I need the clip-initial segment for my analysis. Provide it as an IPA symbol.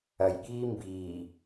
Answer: ɐ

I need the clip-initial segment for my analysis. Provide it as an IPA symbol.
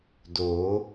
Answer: d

